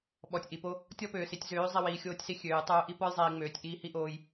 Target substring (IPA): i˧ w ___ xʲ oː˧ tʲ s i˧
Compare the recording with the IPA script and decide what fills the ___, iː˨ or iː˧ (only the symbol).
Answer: iː˨